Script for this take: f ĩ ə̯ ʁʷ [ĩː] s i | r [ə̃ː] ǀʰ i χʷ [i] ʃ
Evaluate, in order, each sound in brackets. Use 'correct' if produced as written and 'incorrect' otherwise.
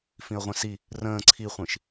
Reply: incorrect: ĩ, correct, incorrect: ĩ

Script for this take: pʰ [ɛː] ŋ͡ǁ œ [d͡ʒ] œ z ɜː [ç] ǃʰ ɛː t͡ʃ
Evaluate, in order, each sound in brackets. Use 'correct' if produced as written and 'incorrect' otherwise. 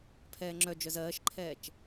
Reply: correct, correct, incorrect: ʃ

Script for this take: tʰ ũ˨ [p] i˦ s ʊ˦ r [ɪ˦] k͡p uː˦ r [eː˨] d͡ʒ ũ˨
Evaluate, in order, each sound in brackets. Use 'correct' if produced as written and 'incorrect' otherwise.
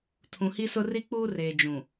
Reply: incorrect: h, incorrect: i˦, correct

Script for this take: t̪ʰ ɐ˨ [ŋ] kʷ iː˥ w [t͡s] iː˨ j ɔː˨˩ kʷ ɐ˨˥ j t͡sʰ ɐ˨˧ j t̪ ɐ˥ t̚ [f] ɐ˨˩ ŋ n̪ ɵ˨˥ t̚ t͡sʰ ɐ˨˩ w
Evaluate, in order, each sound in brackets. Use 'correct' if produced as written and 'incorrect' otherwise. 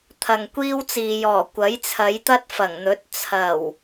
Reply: correct, correct, correct

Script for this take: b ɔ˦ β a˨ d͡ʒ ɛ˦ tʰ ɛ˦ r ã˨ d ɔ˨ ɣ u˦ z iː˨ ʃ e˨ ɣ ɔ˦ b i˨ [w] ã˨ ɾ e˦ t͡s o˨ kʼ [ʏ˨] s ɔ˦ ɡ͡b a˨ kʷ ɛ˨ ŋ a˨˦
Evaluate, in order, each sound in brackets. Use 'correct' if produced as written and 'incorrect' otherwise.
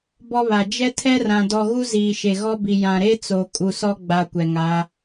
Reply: incorrect: j, incorrect: u˨

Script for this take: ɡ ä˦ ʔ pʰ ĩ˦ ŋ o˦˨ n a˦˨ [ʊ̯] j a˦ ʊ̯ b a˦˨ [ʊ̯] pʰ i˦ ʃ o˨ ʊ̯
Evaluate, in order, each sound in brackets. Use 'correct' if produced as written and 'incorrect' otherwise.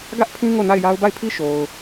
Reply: incorrect: ɪ̯, incorrect: ɪ̯

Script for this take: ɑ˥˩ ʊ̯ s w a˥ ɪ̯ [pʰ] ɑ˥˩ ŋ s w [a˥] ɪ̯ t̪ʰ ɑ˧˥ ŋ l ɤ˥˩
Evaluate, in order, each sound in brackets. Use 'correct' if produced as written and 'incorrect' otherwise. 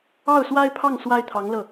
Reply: correct, correct

